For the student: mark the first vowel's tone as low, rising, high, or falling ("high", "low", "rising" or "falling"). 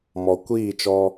low